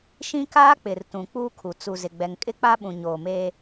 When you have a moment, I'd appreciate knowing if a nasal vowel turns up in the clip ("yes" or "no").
yes